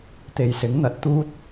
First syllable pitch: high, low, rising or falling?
low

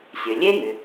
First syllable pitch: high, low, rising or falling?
low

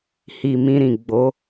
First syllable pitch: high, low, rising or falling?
low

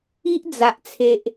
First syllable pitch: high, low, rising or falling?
high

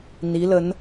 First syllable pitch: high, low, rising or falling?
rising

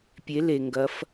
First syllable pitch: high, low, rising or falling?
rising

